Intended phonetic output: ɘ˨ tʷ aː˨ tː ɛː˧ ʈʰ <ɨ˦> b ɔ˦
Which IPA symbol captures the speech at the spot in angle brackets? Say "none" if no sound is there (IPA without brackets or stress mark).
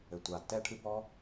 ɨ˧